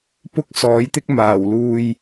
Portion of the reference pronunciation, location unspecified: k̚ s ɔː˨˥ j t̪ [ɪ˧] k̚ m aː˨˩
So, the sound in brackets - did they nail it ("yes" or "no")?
no